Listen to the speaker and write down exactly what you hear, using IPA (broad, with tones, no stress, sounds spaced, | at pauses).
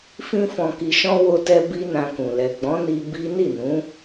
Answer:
f ĩ˦ f ɔ̃˧ k i˧ ʃ ɔ̃˦ w o˧ t ɛ˧ b i˦ n ã˧ k ũ˨ l ɛ˨ ɡ͡b ɔ̃˨˦ n i˧ b i˦ n i˦˨ n ũ˨˦